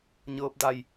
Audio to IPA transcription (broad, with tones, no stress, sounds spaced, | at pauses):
ɲ ɤː˧ p̚ d a˧˩ j